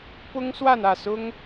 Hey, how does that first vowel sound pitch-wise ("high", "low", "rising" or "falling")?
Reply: high